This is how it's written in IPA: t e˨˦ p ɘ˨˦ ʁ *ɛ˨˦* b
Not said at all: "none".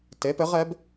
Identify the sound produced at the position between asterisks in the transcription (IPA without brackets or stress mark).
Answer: ɛ˨˦